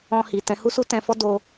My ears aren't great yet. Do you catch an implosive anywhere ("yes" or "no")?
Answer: no